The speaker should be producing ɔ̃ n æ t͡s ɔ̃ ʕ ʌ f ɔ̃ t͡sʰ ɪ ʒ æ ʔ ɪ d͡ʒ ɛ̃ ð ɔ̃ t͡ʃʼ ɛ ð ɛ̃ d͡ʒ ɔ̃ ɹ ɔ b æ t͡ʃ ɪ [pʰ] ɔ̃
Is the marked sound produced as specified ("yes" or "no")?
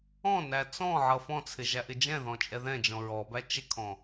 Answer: no